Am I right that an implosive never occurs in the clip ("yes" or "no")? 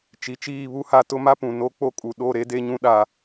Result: no